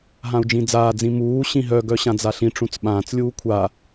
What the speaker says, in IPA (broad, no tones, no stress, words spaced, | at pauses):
ɦãu̯d͡ʒĩd͡zaːd͡zĩ muː ɕĩɦœɡœ ɕãd͡zaɬĩʈ͡ʂũt͡s ɓãːt͡slʲuː kʷʰa